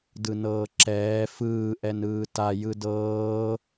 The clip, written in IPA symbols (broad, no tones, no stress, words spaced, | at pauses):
dɯnɤːǁɛː fɯː ʔɛnɯːta jɯdɤː